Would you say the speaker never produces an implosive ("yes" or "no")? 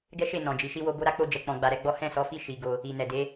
yes